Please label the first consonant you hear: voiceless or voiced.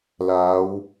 voiced